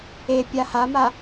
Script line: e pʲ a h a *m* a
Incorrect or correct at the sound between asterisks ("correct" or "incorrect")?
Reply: correct